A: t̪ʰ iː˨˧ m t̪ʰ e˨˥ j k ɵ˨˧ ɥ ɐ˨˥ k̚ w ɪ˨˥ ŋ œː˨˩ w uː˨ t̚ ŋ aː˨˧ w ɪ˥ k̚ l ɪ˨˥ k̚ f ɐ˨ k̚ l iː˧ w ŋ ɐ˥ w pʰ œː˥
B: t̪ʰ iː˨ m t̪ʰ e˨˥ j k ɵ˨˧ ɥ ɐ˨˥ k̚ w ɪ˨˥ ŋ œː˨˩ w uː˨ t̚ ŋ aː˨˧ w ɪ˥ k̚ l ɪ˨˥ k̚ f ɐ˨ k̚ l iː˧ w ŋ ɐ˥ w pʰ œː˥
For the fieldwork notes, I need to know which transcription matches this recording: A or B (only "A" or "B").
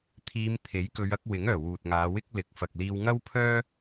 A